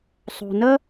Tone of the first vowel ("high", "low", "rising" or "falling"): low